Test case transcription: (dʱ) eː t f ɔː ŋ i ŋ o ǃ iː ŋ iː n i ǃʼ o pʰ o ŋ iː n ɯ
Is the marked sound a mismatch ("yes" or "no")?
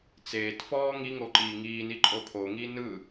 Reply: yes